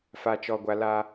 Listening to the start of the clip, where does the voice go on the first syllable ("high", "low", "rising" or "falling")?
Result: low